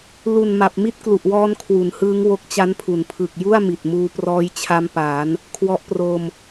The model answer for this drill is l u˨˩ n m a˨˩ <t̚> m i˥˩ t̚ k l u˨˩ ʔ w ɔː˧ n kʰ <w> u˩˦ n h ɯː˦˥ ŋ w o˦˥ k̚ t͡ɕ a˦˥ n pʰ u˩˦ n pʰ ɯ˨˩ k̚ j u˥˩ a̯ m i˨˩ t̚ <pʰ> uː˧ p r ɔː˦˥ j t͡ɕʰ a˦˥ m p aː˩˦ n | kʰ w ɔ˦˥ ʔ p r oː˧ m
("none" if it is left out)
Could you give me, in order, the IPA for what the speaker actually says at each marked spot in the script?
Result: p̚, w, m

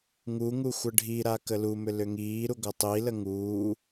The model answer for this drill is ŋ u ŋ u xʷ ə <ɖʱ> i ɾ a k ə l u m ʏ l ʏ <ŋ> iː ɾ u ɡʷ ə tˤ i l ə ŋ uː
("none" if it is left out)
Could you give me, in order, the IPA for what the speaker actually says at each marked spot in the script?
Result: ɖʱ, ŋ

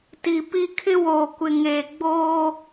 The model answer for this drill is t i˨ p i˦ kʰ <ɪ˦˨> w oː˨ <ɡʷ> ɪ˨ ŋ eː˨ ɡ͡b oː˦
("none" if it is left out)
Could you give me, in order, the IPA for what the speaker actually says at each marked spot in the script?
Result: ɪ˦, kʷ

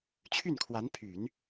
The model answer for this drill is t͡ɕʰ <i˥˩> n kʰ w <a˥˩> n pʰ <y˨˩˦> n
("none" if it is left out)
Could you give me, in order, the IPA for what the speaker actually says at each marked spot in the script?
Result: y˥˩, a˧˥, y˨˩˦

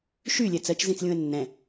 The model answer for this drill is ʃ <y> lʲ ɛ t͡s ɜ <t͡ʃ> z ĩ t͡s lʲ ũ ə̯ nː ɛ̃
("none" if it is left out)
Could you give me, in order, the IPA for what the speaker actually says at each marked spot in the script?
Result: y, t͡ʃ

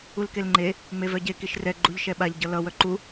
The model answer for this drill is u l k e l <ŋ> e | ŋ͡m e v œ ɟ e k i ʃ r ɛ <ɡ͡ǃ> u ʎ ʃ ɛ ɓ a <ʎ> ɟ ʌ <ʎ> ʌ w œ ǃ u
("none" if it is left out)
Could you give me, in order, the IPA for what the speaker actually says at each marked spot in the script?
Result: ŋ͡ǃ, ɡ͡ǃ, ʎ, l

